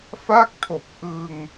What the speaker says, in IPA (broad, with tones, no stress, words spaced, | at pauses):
fa˥˩k̚tʰo˨˩k̚ʔɯ˧ŋ